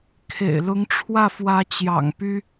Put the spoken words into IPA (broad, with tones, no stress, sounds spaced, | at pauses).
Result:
kʰ ḛ˨˩ ɪ̯ l ʊ˧˥ ŋ ʈ͡ʂʰ w ä˥˩ f w ä˧˥ t͡ɕ j ɑ̰˨˩ ŋ p y˥